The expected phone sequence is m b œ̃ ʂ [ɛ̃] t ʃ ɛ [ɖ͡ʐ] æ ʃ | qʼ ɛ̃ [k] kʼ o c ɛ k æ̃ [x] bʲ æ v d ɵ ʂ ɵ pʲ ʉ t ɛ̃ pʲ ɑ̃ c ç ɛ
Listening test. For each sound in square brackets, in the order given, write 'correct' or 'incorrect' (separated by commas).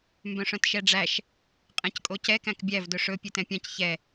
incorrect, correct, incorrect, incorrect